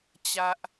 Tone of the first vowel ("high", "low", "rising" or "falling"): low